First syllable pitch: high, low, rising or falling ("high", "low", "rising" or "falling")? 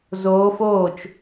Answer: rising